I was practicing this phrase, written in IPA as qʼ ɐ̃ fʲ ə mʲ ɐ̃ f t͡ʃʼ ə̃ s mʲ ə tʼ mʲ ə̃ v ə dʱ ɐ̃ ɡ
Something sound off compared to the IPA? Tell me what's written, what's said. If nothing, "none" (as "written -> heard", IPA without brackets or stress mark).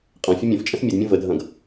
tʼ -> d